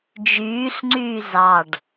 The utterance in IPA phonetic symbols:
d͡ʒ yː ɬ ŋ͡ǀ yː z ɑ ɖ

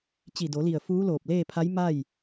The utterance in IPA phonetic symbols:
t͡ɕ i˧˩ d o˩˧ l i˧˩ ə̯ f uː˧˥ l oː˧˩ p̚ l eː˥˨ pʰ a˧˥ j m a˥˨ j

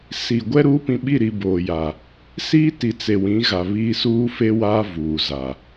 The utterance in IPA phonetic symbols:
s i˨ ɡʷ ɛ˦ ɾ uː˦ p ĩ˨ ɓ i˦˨ ɾ i˨ b oː˨ j a˨ | s iː˦ t i˨ t͡s e˨ w ĩ˨˦ ɣ a˨ β iː˦ s uː˦ f e˦ w aː˦ v uː˨ z a˨

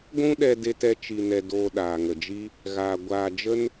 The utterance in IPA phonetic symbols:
ɡʷ ũ˦ ɗ ɛ˧ d e˧ t ɛ˧ t͡ʃ i˧ n ɛ˧ d oː˧ ɗ aː˨ ŋ ə˨ d͡ʒ i˦ | ɣ aː˧ ɡʷ aː˧ d͡ʒ ə˦ n

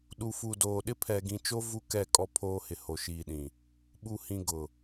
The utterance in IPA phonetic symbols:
ɗ u˨ f u˨ d oː˨ ɗ ɪ˦ pʰ ɛ˨ ɡ ĩ˨ t͡ʃ o˦ v u˦ k ɛ˦˨ kʼ ɔ˦ pʰ oː˦ h ɪ˨ h o˨ ʃ iː˨ ɗ ĩ˨ | ɓ u˨ h ĩ˨ ɡ ʊ˨

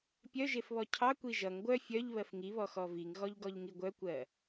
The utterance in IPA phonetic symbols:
pʲ œ ʒ e f β ɔ cʰ ɑ kʷ i ʒ ʌ ŋ ɡʷ œ fʲ œ ʎ β ɜ f ŋ i β ɔ x ɔ v i ŋ ɣ ɔ ʎ ɡ ɔ ʎ ŋ i ɡʷ œ kʷ ɜ

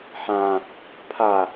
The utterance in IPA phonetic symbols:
ħ ã | pʰ a

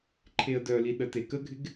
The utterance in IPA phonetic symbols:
ǃʰ e ə̯ d œ l i ɗ ə t e k ə ɡʱ ɪ ɡ

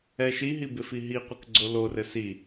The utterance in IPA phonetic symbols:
ɛ ʃ i ɦ i b ɪ f i ɦ i qʷ ɘ k ɡ͡ǀ o l o r ɘ s i

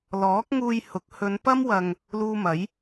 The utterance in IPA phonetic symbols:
l ɔː˨˥ k̚ ŋ uː˧ j h ʊ˨˥ k̚ h ɵ˨˧ n p ɐ˥ m w ɐ˧ ŋ | l uː˧ m ɐ˨˥ j

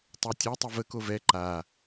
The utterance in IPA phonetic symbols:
tˤ ɛ tʲ ɛ tˤ e v ə k o v ɛ ǃ a

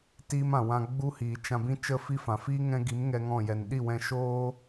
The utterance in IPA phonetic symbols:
t iː˦ m ã˨ w ã˧ ɡ͡b u˦ h iː˨ t͡ʃ ã˧ b ĩ˦ t͡ʃ ə˦ f i˦ f ã˨ f iː˦ ŋ ɛ̃˧ ɡ i˨˦ m ŋ ɛ˦ ŋ ɔ̃˦˨ j ɛ˨ n ɗ i˦˨ w ɛ̃˧ ʃ oː˦

